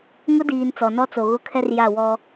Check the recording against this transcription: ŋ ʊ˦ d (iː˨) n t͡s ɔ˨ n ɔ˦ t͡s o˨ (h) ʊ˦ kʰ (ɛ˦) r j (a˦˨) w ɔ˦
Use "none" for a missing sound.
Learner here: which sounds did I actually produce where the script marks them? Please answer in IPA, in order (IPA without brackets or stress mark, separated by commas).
iː˨, ɣ, ɛ˦, a˦˨